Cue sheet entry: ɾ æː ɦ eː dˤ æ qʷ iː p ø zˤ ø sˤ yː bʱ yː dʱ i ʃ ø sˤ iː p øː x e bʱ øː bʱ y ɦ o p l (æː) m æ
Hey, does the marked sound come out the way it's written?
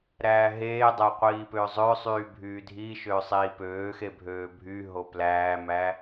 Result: yes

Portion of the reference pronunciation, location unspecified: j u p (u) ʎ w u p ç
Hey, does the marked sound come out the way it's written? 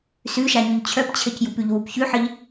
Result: no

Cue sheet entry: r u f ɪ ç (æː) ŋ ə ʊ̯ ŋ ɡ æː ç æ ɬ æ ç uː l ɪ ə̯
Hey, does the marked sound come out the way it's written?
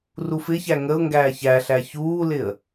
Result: no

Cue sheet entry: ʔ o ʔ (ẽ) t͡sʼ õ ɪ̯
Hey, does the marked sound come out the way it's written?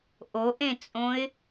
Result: yes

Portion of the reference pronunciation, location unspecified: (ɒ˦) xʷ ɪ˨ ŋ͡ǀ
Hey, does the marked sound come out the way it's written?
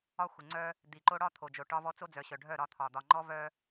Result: yes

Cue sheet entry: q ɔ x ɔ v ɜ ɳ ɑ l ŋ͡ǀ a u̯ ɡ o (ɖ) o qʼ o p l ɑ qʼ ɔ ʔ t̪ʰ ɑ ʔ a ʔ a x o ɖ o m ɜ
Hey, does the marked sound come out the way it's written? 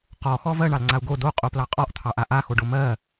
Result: no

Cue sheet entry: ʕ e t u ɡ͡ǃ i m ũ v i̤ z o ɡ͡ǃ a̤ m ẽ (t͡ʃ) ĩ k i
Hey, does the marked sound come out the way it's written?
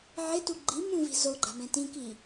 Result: no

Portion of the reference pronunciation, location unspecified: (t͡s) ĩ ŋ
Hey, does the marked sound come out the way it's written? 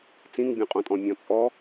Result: yes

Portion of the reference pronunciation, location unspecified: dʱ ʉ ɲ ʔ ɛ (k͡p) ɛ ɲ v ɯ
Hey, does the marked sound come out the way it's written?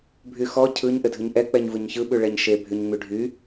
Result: yes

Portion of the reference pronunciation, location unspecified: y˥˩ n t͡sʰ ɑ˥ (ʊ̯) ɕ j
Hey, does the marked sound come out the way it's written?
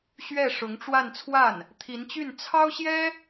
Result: yes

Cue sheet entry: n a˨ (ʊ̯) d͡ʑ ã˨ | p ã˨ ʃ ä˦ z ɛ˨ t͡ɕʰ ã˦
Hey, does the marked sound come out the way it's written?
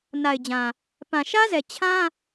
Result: no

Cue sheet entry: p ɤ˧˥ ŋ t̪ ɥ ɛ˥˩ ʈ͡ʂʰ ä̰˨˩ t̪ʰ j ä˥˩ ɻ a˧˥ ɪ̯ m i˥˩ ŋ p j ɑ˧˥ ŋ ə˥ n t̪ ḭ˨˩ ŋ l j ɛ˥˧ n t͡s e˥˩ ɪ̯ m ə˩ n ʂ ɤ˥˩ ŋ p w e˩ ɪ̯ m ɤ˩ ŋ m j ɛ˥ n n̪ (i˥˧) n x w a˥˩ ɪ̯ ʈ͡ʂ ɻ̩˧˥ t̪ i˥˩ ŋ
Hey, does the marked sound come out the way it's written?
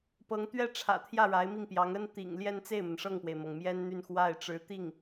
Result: no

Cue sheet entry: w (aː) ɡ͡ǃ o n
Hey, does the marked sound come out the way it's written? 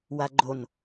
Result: no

